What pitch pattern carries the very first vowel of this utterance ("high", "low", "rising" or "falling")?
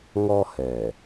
high